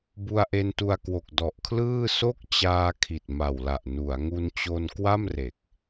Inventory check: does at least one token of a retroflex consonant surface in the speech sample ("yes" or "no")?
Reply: no